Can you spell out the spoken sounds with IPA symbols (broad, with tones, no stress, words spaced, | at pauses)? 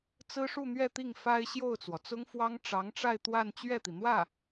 t͡sɹ̩˥ʂu˥˧n̪ɥɛ˥˧t̪i˥˩ŋ fa˥ɪ̯ ɕjo˥˩ʊ̯t͡swɔ˩t͡sʊ˥ŋfwɑ˥ŋ ʈ͡ʂɑ˧˥ŋʈ͡ʂa˥˧ɪ̯t̪wa˥˧n t͡ɕɥɛ˥˩t̪i˩n̪wä˥˩